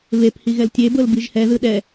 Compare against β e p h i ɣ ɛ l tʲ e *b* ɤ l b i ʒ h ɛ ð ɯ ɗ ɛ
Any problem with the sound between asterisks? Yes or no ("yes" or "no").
no